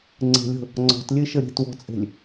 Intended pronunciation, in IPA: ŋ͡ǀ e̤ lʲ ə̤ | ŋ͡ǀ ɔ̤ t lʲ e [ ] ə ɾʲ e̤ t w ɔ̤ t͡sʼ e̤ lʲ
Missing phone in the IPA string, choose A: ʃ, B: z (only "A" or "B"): A